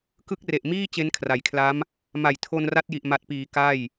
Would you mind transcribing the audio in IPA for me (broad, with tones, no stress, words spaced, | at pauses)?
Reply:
kɯ˦˥k̚re˨˩ʔmiː˥˩ t͡ɕe˦˥nkʰra˩˦jkʰla˦˥m | ma˨˩j tʰo˧nra˦˥t̚ji˨˩ʔ ma˨˩t̚piː˩˦ ka˥˩j